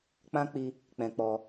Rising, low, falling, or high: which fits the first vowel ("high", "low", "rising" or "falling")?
high